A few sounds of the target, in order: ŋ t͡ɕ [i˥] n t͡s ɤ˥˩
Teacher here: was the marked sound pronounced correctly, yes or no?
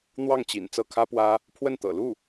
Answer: no